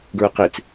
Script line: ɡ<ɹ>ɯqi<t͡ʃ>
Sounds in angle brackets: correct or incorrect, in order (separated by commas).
correct, incorrect